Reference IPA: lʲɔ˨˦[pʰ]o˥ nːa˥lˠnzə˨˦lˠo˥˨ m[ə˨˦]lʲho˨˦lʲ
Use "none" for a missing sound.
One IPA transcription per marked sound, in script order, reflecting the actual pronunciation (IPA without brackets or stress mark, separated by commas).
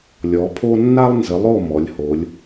pʰ, ɔ˨˦